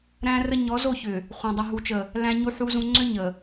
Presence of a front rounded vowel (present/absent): present